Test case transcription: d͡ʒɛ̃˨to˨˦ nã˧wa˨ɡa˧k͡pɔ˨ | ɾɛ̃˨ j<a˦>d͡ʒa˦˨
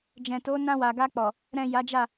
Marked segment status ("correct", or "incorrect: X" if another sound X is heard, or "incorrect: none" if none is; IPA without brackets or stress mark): incorrect: a˨˦